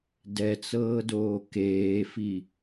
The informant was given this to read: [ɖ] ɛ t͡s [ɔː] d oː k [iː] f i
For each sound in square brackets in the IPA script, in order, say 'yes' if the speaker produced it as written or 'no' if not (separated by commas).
no, no, no